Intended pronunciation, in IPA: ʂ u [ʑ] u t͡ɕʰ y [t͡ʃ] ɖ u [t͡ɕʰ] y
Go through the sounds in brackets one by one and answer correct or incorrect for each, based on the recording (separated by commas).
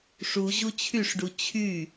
correct, incorrect, correct